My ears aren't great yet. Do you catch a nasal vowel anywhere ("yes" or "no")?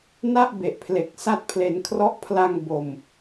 no